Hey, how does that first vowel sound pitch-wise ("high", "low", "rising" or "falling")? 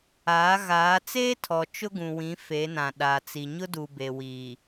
rising